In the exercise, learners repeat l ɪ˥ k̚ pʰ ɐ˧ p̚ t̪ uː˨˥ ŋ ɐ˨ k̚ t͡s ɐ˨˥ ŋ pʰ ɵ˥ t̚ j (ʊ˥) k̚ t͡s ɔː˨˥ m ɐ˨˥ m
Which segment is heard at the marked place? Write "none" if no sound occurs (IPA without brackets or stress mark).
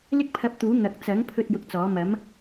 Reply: ʊ˧